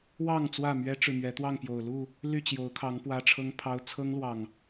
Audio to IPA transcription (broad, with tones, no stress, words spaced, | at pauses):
wɑ˥˨ŋ t͡swä˥˨mɥɛ˦ʈ͡ʂɻ̩˨ mɥɛ˨˦t̪wɑ˥˨ŋ pjo˨˩ʊ̯ lu˥˨ | ly˥˨t͡ɕjo˨˦ʊ̯kʰɑ˨˦ŋ pwä˦ʈ͡ʂʰɤ˦ŋpʰɑ˦ʊ̯ t͡sʰɤ˦ŋlwɑ˨˩ŋ